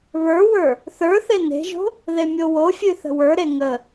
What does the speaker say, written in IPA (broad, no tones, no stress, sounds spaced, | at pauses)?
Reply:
β ə˞ w ə˞ | θ ə˞ θ e n e̤ ʒ o̤ | ð e mʲ o w o fʲ ʉ θ ə̤ w ə˞ ɾ e ŋ ə